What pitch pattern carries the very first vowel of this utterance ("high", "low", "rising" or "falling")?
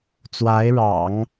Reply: rising